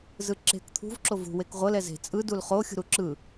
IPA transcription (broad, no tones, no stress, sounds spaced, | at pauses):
z ɯ ǁ e̤ k t̪ʰ ṳ v ǁ o v ṳ w e k ʁʷ ɤ l ɛ z e̤ t͡sʼ ɯ d u l χ o xʲ ṳ ɾ u ǁ ɯ